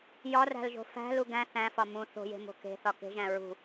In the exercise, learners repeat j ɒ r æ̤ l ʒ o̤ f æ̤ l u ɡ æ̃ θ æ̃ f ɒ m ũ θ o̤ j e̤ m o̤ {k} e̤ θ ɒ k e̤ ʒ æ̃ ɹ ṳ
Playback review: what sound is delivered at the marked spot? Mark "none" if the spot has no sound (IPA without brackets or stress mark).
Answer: k